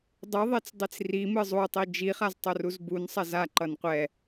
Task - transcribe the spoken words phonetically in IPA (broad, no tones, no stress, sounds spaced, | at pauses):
dˤ ɯ ðˤ e t͡s dˤ i t͡s r i m ɯ zˤ u tˤ i d͡ʒ i χ a z tˤ o r u z b u n sˤ ɛ z a ǃ ʌ n qʷ ɛ